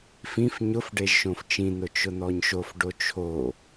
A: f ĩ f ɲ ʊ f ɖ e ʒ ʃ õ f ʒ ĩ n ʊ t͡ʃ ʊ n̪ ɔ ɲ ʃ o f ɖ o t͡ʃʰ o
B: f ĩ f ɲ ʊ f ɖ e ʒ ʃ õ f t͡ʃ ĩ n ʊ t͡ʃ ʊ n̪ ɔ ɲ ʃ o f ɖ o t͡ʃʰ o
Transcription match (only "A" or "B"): B